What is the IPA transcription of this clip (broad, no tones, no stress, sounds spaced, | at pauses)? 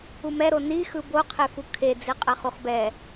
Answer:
u m ɛ ɾ o n i x ɯ b o qʰ e f u kʰ e d͡z e qʼ ɛ χ u χ b ɛ